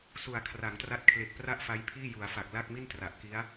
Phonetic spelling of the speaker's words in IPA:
s u˩˦ a̯ kʰ r a˩˦ ŋ t r a˦˥ t̚ kʰ l e˨˩ k̚ p r a˥˩ ʔ f a˦˥ j pʰ iː˥˩ j u˩˦ a̯ f a˨˩ k̚ l a˥˩ k̚ m i˥˩ n t r a˨˩ ʔ k i˦˥ a̯

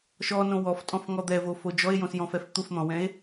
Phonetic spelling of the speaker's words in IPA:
ʃ ɔ n õ w ɔ f tʼ ɔ̃ f ŋ ɔ d̪ ɛ v o f o d͡ʒ ɔ e̯ j õ s j ɔ̃ f ɛ f t̪ u f n̪ ɔ̃ w ɛ̃ e̯

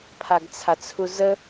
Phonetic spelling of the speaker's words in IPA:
pʰ a ɡ t͡sʰ a t͡sʰ u z ə

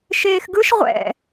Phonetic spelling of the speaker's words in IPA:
ʃ eː x ɡ ɯ ʃ ʁʷ ɛ̰

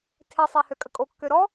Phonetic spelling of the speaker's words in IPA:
tʰ e sˤ e h ø kʼ ə kʼ o kː ø ɾ ɔ

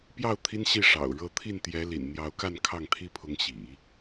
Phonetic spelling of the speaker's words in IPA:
p j ɑ˥˩ ʊ̯ t̪ʰ i˥ n ɕ i˥˩ ʂ ɑ̰˨˩ ʊ̯ ɻ ɤ˥˧ t̪ʰ i˥˩ n t̪ j ɛ˧˥ l ḭ˨˩ n n̪ j ɑ˧˥ ʊ̯ k a˥˧ n kʰ ɑ˥˩ ŋ t̪ʰ i˥ pʰ ʊ˧˥ ŋ ɕ ḭ˨˩˦

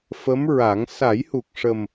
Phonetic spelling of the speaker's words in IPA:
f ə˧˥ m ɹ a˨˩˦ ŋ s a˨˩˦ j h u˨˩ k̚ ʂ ə˨˩ m

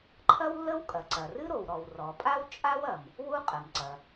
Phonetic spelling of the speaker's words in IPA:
ǃʰ ɐ˥ w lː ə˥ w kʼ ɐ˩ ǀ ɐ˩ r ɨ˥ ɾ o˩ w ɾ ɔ˩ w r ɔ˩ pʼ a˥ w t͡ʃʼ a˥ w ɐ˩ m | w u˥ qʼ ə˩ m ǀ ɐ˩

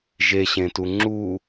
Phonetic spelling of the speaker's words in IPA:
ʒ e ɕ ẽ t u ŋ͡ǁ u

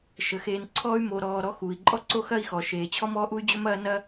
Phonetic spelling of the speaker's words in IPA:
ʃ ə˩ x eː˨ n ǀʰ ɔː˦ y̯ m o˨ ɾ ɔː˨ ɾ ɔ˦ x uː˩ i̯ ǃʼ ɔ˥ ǀ o˦ x ɐ˦ i̯ x ɔ˩ ʃ eː˩ t͡ɕʰ ɔ˦ m ɔː˥ ʔ u˥ y̯ d͡ʑ ɵ˥ m ɐː˥ n ɐ˥

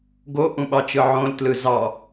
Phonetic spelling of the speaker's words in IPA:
ɡ o ʔ ũ ɓ ɑ t͡ʃ ɯ ʕ õ l t l ɯ z ɑ

